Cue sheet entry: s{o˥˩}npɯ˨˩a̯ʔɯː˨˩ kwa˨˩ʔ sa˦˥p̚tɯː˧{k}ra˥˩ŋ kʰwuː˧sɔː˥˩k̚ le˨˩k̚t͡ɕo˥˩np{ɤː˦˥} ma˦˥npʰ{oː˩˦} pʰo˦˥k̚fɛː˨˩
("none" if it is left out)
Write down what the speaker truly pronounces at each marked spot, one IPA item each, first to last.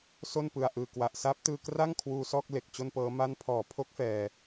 o˥˩, k, ɤː˦˥, ɔː˩˦

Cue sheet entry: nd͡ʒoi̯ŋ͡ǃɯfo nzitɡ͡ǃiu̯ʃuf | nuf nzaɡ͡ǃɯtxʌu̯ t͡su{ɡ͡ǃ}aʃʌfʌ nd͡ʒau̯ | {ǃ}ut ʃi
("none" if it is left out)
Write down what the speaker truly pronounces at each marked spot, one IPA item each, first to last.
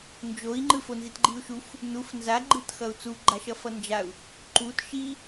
ɡ͡ǃ, ǃ

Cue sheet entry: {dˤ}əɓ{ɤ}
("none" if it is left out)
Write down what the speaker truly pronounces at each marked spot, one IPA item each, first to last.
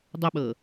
dˤ, ɤ

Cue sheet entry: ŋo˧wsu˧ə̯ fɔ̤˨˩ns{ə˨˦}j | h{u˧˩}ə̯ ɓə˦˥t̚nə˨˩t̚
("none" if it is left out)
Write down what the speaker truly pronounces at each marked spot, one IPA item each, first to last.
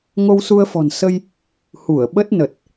ə˧, u˧˩

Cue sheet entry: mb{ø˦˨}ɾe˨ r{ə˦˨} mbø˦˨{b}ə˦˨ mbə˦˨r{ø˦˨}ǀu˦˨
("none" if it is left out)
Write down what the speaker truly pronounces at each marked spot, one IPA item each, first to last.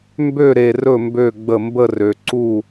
ø˦˨, ɵ˦˨, ɡ͡b, ø˨

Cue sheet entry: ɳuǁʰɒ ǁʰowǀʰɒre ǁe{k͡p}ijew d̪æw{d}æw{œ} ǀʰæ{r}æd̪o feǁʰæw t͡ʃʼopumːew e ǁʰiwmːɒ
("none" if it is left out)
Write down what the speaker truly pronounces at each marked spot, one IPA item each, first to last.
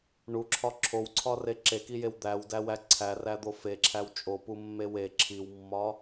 k, d, æ, r

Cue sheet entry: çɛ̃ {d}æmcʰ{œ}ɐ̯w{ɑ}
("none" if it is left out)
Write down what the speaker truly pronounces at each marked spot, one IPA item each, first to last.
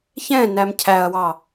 n, æ, ɑ

